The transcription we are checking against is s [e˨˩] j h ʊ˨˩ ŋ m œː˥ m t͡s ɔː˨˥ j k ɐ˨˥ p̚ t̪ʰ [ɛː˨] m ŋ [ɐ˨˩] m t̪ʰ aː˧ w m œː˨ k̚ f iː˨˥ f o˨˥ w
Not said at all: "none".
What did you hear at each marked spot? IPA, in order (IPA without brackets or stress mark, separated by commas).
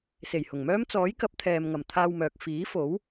e˨˩, ɛː˨, ɐ˨˩